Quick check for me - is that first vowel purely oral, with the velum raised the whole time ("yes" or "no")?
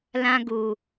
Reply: no